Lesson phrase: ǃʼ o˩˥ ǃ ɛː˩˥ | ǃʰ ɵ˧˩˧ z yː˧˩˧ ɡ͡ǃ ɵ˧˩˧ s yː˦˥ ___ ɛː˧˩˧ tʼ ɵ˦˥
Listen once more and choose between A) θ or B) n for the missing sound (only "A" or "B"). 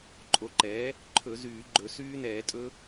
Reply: B